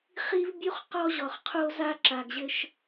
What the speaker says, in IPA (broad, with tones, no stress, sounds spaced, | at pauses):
χ i˦ v bʲ u˦ χ q ɔ˦ ʑ ɔ˨ χ qʰ o˦ z a˦ ǁ a˨ ɡ ʑ ɘ˦ ʃ